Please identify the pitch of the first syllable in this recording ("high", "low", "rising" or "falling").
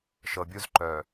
low